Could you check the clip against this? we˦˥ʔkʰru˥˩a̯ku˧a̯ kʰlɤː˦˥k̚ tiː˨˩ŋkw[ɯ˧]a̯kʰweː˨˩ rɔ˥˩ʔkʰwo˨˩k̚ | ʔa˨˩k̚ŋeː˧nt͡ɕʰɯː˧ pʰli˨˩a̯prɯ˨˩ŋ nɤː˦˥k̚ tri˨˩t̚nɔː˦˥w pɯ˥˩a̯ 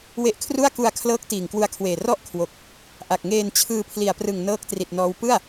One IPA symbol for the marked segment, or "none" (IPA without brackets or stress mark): u˧